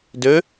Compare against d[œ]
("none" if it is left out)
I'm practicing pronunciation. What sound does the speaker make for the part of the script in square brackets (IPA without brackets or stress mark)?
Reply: ø